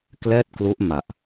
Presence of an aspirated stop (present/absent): absent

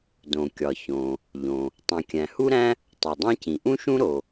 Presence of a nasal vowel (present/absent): present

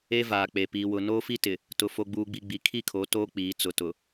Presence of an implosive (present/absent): absent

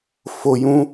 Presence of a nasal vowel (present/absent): present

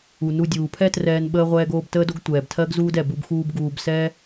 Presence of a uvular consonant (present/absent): present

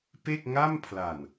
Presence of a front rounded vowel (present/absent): absent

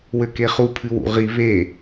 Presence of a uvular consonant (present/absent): present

